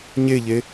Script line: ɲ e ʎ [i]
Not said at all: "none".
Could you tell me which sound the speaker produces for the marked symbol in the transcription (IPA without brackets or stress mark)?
e